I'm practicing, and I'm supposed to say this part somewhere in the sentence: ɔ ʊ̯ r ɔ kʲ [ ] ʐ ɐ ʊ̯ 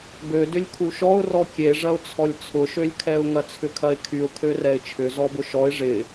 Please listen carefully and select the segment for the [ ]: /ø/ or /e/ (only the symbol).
e